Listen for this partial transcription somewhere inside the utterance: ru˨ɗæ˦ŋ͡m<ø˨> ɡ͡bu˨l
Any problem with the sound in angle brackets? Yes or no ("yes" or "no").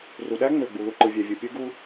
no